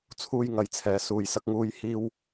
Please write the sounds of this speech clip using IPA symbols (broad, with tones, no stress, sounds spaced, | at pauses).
t͡sʰ uː˧ j ŋ ɐ˨˧ j t͡sʰ ɛː˨˧ s uː˨ j s ɐ˧ k̚ ŋ uː˧ j h iː˧ w